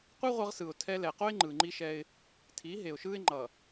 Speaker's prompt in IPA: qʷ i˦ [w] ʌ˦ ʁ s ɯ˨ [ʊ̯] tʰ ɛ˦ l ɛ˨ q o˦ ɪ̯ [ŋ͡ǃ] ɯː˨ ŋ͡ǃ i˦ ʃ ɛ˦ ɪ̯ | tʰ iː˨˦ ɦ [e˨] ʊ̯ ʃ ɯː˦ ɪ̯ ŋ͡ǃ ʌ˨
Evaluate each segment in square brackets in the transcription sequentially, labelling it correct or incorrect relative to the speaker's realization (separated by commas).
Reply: incorrect, correct, correct, correct